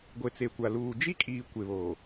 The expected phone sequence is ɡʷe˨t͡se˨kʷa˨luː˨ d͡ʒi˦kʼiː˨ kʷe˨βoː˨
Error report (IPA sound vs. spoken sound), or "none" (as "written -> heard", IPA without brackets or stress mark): none